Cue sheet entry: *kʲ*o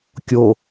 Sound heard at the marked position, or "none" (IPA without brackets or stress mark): kʲ